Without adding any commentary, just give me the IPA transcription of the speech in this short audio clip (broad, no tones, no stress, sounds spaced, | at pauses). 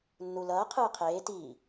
nː u l ʌː qʰ ɯː qʰ eː t i